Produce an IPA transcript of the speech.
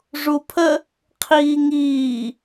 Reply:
ʐupʰə | qʰiːŋiː

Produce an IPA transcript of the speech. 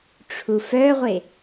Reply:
ʈ͡ʂʰufœʁʷe

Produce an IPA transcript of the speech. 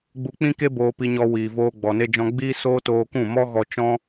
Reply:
ɡ͡bu˧k͡pĩ˦ke˦ boː˧pi˧ɲɔ˧ wiː˨voː˧ ɡ͡bɔ˨ne˧d͡ʒɔ̃˧ ɡ͡biː˦soː˦ toː˧kũ˦˨mɔ˦ ɣɔ˧t͡ʃɔ̃˦

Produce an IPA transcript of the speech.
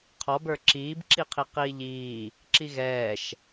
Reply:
qʰɔbə˞ ǁiːbǁiqʰi qiːʎiː | ǁiɣɛːʃ

